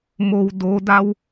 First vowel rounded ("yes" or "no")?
yes